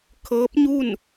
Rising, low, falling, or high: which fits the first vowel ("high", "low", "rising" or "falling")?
rising